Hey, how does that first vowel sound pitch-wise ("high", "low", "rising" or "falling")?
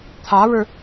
rising